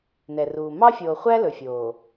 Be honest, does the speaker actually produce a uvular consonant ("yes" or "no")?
yes